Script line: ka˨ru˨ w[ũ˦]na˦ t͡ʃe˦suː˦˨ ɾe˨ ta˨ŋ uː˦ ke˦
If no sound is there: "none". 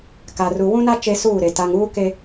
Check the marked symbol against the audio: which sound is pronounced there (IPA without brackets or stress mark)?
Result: ũ˦